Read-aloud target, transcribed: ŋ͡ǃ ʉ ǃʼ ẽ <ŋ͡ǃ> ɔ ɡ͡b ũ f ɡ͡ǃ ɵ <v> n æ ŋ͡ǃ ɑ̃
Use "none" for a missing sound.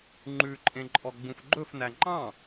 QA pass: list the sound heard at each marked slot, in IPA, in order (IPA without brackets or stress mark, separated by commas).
ǃʼ, f